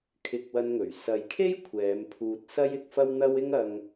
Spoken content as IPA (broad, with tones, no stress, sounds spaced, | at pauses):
kʰ ɪ˧ k̚ w ɐ˧ n ŋ ɵ˨˩ ɥ s ɐ˨ j kʰ e˥ j kʷʰ ɛː˨˧ m pʰ uː˧ t̚ s ɐ˥ j ɪ˧ k̚ f ɐ˥ w n̪ ɐ˥ w ɪ˥ ŋ ɐ˧ ŋ